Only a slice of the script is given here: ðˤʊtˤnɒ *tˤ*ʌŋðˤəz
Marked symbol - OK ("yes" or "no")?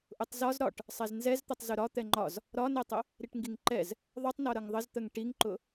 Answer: no